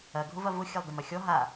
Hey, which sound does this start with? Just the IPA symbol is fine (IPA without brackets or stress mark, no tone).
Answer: ɐ